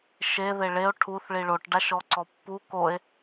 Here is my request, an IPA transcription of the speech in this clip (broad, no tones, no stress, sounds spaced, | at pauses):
ʃ e ð e ɭ e o̯ ʈʰ u θ ɭ i ɭ o ʈ ɖ a ʃ ɔ ǀ ɔ pː u k o e̯